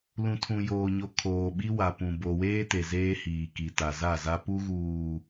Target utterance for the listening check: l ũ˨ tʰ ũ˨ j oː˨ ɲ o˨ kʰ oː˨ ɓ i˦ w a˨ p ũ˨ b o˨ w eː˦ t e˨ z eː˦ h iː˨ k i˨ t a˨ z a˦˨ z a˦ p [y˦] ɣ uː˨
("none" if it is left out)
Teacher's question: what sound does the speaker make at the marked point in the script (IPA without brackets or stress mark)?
u˦